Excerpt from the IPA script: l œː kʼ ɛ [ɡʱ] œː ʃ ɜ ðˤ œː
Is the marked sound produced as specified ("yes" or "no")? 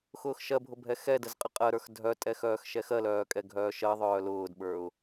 yes